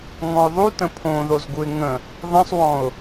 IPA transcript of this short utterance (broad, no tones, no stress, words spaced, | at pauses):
ŋɔ̃ʊ̯ðˤutə̃ pʰõ ðozɡuɪ̯ŋə̃ | ðˤĩsˤwɔ̃ʊ̯